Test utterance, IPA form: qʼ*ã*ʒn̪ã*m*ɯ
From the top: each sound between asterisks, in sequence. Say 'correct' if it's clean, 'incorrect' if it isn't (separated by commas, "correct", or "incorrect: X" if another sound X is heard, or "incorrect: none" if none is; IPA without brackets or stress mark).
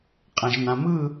correct, correct